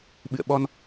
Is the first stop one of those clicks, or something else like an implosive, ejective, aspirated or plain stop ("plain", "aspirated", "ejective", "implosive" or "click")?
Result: implosive